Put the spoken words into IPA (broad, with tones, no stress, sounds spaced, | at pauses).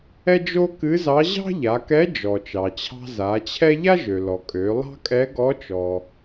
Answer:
ɛ˥ d͡ʒ o˥ k ɨ˧˥ z ɑ˧˥ ʑ ɑ̤˥ ʎ a˩˧ k ɛ˧˥ d͡ʒ ɔ˩ t͡ʃ ɑ˩ t͡ɕʰ ɑ̤˧ z a˩˧ t͡ɕʰ ɛ˥ ʎ a˥ ʒ ø˩ l ɔ˩ kʼ ø˩˧ lˠ ɑ̤˥ kʼ ɛ˧˥ ɡ ɔ˧˥ t͡ʃ ɔ˩